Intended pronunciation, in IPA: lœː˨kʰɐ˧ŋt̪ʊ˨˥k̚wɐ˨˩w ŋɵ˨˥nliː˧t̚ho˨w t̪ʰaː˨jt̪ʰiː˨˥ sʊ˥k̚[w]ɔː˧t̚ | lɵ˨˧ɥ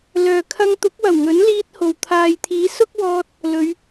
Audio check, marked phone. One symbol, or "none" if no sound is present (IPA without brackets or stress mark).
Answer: w